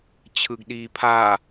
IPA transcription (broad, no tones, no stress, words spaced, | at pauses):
t͡ɕʰɯɡɗiːpʰa